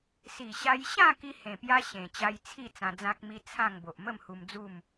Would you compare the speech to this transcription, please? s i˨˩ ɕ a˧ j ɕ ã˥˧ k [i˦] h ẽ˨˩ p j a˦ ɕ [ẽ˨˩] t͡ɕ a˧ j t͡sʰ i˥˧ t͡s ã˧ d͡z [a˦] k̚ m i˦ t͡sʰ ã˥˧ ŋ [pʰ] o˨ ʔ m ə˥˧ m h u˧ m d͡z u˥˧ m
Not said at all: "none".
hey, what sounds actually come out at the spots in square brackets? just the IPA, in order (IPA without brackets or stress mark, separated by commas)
i˦, ẽ˨˩, ã˦, b